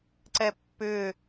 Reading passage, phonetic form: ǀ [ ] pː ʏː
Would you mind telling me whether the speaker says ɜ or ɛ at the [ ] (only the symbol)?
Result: ɛ